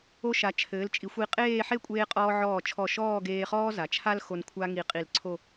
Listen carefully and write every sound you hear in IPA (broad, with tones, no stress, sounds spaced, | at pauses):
o˧ ʃ a˩˧ t͡ʃʰ ɘː˩˧ l t͡ʃʼ i˩˧ xʷ i˧˩ qʼ eː˥˧ ħ e˥˧ kʷʼ eː˧ qʼ ɔː˧ ʕ ɔː˧˩ t͡ʃʰ ɔ˧˩ ʃ ɔː˥˧ ɡ eː˧ χ ɔː˥ z a˩˧ t͡ʃʰ a˥ l x o˧ n kʷʰ a˥ ŋ i˧˩ qʼ i˧˩ l ǀʰ o˥˧